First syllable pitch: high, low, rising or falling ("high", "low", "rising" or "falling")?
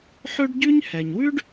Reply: high